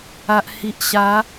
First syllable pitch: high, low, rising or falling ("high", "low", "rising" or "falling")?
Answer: low